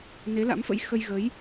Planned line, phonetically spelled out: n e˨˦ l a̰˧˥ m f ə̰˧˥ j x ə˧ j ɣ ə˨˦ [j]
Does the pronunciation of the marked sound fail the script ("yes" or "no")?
no